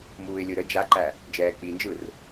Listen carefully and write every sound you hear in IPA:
muːɪ̯lʲɯɾə d͡ʒaǃæ | d͡ʒɛːk͡pind͡ʒɯr

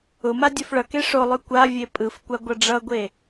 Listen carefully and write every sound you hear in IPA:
ʊma dʲofɭʌke ʂolˠʉ kʷavʲe pʼɯfkʷa ɡʷʌɖ͡ʐʌɡʷe

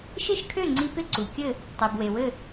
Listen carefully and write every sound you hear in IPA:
ʃɪ˥˩ʃkʰø˥˩ŋ͡ǀi˧ pɪ˥˩ǀu˩kʲɘ˥˩ | tˤe˩bwe˩wɘ˥˩

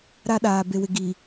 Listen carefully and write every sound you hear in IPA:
ɾa˦ɗaː˨ be˨wɪ˨ ɡi˨

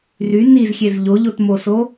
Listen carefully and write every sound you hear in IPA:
ry nizxʲez ʎoʎotmoso

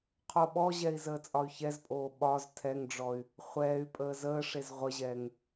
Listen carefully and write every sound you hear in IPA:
qʰoɓɔʑɛi̯ zəːt͡sʼɒy̯çɛzpʼoː ɓɒz tʰɛŋɖ͡ʐɔy̯ | χʷɛːy̯pʼəː zəːʂez ʁʷəʑɛːŋ

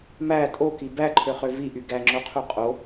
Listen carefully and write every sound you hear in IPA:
mæ tʼoki bæǃʰøχø viʔy ɡæŋ͡ǁoqʰu qʼo

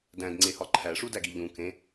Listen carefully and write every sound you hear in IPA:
dæ̃dŋ͡ǀehɒ ǃʰæʂu dæɡiʎũ kẽ

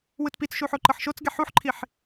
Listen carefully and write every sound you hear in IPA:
wɯtpit͡sʃu ħoǃɤħʃot͡sɡɛ ħuħǃʰiħ

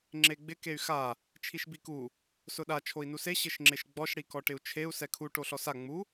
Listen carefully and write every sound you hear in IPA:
ŋ͡ǁeɡ͡bɪ key̯xa | t͡ʃʰiʃbiku | sʊɗa t͡ʃʰoi̯nuse ɕɪʃŋ͡ǁɪʃɡ͡bɔʃ ɽikɔʈɪu̯t͡ʃʰeu̯ sɛkʰu ʈoɬɔsa ŋ͡mu

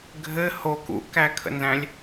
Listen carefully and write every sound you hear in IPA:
ɡʱɘ ho kṵʔkækʰə̰nzæ̃lʲ

